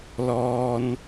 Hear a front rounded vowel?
no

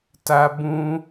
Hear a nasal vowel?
yes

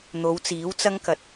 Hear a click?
no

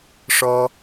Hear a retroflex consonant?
yes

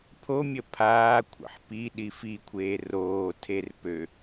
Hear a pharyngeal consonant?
yes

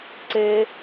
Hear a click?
yes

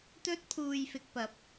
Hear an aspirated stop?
yes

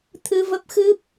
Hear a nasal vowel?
no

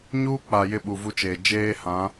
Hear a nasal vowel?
yes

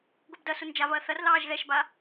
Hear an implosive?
no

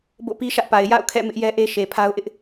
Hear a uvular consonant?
no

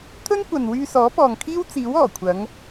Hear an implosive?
no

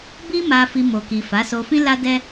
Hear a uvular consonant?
no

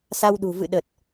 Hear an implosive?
yes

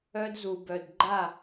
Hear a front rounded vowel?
yes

